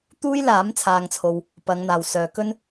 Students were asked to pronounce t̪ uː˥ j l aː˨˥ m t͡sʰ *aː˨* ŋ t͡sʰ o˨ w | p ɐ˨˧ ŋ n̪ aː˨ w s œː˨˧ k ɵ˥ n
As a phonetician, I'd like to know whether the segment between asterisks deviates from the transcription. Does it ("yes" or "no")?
no